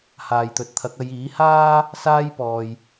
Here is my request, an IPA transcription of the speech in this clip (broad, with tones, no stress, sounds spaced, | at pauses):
h aː˨ j t̪ ɵ˨ t̚ t̪ʰ ɐ˨˥ k̚ ɐ˨˧ j iː˨˥ h aː˥ | s aː˥ j p ɔː˧ j